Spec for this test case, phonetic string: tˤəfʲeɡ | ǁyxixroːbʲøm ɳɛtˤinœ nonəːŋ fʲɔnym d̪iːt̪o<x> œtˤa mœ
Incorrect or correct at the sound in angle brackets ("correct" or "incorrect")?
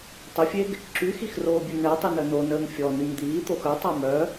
correct